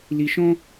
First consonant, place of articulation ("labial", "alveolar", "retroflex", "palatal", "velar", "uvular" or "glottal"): alveolar